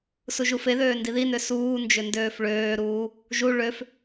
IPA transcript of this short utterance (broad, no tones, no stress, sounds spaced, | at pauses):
s u ʒ u f e ð øː n d i ð i n ø s uː n d͡ʒ ʏ n d øː f ɭ øː ɾ uː | ʒ u ɭ ø f